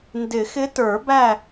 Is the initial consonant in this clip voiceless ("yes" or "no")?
no